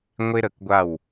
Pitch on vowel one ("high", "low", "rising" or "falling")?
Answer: high